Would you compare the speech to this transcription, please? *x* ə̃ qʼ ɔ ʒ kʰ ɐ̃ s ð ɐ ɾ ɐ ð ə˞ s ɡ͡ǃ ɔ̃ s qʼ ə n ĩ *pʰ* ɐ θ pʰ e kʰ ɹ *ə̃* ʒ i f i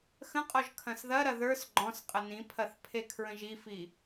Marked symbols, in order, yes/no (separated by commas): yes, yes, yes